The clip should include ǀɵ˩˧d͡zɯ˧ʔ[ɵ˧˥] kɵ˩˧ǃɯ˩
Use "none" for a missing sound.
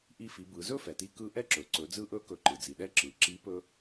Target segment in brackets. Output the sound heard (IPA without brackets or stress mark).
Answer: ɵ˧˥